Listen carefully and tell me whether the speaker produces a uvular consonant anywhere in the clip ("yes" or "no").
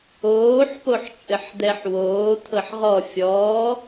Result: yes